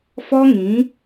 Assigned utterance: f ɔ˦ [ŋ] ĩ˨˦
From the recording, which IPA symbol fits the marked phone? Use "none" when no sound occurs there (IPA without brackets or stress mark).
ŋ